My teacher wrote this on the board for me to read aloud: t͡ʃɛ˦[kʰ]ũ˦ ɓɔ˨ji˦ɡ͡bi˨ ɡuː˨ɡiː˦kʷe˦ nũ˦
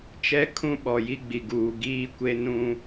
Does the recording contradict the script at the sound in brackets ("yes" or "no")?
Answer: no